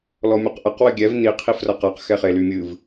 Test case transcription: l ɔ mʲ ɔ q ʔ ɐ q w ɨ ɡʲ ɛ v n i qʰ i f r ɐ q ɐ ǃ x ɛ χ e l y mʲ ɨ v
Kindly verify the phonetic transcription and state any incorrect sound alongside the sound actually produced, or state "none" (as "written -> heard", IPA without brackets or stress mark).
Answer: ǃ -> q